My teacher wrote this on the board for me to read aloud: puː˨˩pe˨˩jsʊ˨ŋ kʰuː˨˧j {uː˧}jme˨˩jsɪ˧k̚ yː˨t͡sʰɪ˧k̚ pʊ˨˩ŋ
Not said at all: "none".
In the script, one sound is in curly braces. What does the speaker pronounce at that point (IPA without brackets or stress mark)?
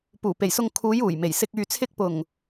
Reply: uː˨˩